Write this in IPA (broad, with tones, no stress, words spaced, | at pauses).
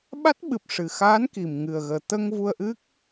ɓa˦˥t̚ɓɨ˨˩p̚ʂɨ˨˩ xaː˧˥nki˨˩mŋɨ˨˩ə̯ɣəː˨˩ t̪ə˧ŋ vu˧ə̯ʔɨ˦˥k̚